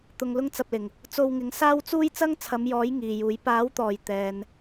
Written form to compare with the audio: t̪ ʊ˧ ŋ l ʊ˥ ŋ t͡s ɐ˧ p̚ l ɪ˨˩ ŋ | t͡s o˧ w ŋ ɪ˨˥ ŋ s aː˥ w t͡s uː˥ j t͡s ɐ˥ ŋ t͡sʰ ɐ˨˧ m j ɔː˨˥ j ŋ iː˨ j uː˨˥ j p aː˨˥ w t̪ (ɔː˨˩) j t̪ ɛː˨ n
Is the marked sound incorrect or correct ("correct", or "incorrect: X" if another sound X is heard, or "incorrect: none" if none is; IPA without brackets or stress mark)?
correct